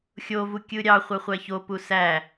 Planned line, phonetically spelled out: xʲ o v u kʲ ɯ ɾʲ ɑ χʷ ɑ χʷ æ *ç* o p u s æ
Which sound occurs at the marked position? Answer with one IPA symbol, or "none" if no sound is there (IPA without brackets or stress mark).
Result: ç